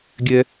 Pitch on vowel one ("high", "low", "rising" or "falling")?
low